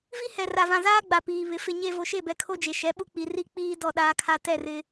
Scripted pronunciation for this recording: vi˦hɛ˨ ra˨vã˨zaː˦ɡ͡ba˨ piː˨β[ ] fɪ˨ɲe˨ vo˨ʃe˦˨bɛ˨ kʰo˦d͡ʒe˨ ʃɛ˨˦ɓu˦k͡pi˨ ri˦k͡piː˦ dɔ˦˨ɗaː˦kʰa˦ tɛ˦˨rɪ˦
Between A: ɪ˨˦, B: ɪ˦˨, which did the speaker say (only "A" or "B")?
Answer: A